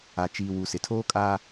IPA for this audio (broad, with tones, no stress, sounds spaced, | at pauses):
a˨ t͡ʃ iː˨ w u˨ s ɪ˨ tʰ oː˦ kʼ aː˦